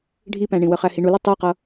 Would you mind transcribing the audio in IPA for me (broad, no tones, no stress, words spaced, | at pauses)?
ɖʱipæ̃ɳĩwə χæhiɳulʊ tˤiqʌ